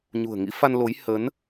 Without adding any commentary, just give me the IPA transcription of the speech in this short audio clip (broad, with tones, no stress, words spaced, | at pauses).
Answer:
ɲṳ˨˩ə̯ ŋḭ˧˥fa˧nlo˨˦j hə˨˦n